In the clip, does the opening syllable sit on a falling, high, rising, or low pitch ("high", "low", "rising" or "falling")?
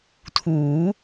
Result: rising